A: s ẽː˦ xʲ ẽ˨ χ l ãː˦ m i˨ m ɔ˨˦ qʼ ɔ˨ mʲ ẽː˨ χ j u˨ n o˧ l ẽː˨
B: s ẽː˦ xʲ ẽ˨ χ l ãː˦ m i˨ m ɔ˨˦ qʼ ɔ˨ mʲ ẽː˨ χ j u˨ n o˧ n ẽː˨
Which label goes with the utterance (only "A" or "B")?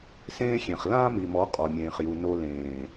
A